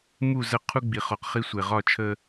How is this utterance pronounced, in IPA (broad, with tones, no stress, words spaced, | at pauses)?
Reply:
mu˦˨zə˦ qʰu˦ɡ͡bi˨ χɔ˨q χi˦sʷe˨ ʁɒ˦˨t͡ʃʰə˦